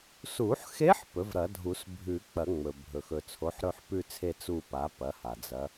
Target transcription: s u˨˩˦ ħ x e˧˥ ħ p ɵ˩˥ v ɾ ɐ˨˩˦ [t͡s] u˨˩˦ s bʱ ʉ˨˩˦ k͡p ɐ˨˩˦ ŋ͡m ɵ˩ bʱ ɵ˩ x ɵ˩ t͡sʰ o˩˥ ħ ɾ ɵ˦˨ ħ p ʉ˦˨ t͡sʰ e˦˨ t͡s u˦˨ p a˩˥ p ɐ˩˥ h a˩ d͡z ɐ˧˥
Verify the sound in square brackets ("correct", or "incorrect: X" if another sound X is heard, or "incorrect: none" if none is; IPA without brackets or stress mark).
incorrect: dʱ